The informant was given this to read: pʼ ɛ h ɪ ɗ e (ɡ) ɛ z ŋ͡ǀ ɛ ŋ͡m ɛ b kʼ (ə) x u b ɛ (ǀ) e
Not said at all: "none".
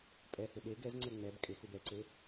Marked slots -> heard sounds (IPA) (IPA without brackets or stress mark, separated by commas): ɡ, ɪ, ǀ